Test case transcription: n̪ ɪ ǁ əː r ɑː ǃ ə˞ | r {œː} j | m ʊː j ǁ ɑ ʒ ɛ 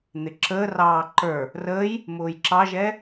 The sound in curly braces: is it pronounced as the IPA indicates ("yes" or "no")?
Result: no